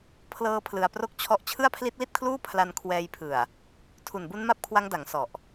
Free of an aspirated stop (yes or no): no